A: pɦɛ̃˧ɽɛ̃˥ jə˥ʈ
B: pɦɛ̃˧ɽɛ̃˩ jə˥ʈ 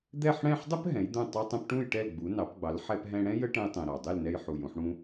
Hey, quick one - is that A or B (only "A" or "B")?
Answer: A